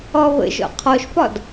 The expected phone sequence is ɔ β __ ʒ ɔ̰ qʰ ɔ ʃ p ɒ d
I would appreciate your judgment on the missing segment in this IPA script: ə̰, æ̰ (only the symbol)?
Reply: ə̰